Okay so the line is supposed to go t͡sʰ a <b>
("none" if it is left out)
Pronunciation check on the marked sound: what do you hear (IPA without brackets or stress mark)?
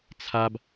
b